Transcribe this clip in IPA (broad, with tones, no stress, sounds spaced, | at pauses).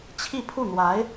t͡ɕʰ i˥˧ pʰ u˥˩ n̪ w a˧˥ ɪ̯